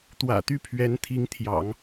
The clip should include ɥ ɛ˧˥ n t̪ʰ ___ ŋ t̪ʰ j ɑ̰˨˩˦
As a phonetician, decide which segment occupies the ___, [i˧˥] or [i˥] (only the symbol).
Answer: i˧˥